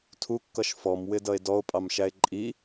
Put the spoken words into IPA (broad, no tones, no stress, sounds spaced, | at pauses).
tʰ u kː ʌ ʃ f ɔ m w ɪ d ʌ e̯ d ɔ o̯ pʼ ɑ m ʃ æ e̯ ǃʼ i